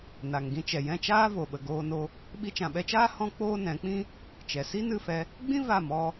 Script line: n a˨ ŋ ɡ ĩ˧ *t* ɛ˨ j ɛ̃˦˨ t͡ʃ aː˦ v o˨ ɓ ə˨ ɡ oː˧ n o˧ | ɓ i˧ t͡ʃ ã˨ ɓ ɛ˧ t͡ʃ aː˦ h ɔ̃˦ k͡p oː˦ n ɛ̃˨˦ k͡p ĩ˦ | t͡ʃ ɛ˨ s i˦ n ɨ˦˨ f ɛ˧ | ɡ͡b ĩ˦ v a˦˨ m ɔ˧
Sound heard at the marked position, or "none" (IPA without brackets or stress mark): t͡ʃ